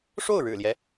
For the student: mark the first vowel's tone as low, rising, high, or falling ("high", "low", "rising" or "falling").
falling